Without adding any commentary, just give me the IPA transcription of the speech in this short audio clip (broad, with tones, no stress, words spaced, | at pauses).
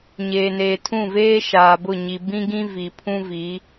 ɲeː˨neː˨tʰũ˦˨veː˦ ʃaː˨bʊ˦˨ɲi˨ bĩ˦ɡĩ˦ vi˨pʰũ˦vi˨˦